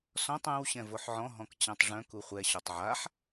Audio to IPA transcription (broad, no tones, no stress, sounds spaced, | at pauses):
s ɔ̃ tˤ œ̃ w ɕ ɛ̃ v o ħ ʕ ɔ̃ ɦ ɔ̃ k t͡ɕ ã tˤ ʐ œ̃ k u χʷ ɛ ɕ ɔ tˤ ʕ a ħ